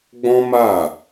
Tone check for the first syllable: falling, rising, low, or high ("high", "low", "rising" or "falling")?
high